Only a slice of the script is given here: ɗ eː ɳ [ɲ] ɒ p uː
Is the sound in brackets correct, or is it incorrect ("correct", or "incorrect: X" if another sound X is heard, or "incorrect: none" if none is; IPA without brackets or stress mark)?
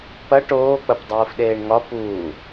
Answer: incorrect: ŋ